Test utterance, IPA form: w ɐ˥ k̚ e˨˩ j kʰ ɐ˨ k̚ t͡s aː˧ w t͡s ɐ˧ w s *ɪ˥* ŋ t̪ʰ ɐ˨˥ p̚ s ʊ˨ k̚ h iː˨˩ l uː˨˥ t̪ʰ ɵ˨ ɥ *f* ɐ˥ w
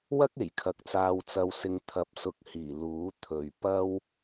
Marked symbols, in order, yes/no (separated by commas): no, no